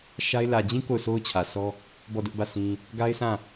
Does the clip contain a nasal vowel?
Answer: yes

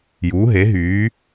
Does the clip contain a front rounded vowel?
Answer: yes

